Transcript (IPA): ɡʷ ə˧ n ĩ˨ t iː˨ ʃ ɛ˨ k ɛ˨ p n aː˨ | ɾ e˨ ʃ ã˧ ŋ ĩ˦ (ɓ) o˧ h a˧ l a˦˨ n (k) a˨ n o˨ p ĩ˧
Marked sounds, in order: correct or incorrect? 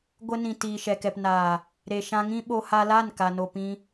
correct, correct

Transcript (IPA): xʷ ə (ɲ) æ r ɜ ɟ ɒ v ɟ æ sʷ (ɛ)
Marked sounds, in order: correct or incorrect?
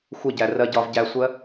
incorrect: ɟ, incorrect: ɜ

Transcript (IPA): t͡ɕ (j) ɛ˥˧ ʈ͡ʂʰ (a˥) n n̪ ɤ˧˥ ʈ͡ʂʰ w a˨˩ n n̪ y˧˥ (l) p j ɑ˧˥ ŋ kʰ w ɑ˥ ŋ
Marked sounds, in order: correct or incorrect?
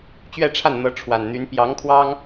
incorrect: ɥ, incorrect: a˥˩, incorrect: n

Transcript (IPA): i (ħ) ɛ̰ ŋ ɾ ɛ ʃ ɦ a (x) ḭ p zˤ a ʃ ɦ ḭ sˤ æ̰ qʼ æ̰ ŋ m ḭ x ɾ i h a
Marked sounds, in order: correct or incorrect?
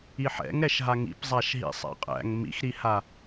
correct, incorrect: ŋ

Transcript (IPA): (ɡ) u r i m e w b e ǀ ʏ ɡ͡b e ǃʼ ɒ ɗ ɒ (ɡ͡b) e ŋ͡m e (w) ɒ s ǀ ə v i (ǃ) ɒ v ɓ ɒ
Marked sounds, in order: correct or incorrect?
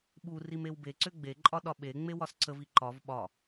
incorrect: ɓ, incorrect: ɓ, correct, correct

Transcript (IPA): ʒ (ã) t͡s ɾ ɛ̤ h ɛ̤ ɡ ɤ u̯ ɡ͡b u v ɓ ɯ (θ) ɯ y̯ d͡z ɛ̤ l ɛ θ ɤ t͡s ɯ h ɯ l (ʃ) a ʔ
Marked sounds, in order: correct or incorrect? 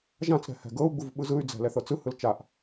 correct, incorrect: z, incorrect: t͡ʃ

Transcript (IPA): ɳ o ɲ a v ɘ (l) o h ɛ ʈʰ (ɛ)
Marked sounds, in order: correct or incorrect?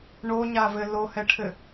correct, incorrect: ɘ

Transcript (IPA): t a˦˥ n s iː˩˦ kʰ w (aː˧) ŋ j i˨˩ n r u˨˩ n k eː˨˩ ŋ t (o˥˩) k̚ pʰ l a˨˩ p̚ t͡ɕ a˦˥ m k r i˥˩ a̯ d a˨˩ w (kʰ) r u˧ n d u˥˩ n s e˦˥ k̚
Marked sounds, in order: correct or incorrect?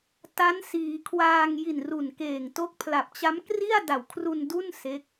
correct, incorrect: o˦˥, correct

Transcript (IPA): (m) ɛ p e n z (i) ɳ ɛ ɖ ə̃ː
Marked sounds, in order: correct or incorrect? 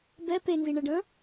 incorrect: b, correct

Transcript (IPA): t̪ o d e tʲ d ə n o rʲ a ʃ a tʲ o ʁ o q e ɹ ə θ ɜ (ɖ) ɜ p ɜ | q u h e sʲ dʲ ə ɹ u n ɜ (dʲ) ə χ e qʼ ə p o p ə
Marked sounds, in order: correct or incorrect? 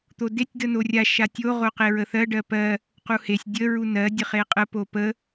correct, correct

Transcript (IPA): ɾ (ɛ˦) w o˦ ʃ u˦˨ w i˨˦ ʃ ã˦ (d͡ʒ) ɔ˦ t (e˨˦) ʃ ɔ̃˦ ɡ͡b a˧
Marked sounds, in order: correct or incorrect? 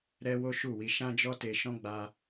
correct, correct, incorrect: e˧

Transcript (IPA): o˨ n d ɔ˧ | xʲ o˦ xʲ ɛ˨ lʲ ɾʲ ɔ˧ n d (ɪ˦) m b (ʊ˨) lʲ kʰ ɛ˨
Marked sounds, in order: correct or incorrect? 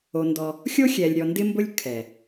correct, incorrect: ʊ˦

